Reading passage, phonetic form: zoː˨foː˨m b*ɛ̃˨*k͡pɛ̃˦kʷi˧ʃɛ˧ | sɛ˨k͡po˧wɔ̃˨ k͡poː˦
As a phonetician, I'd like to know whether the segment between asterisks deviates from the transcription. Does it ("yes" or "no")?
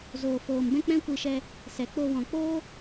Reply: yes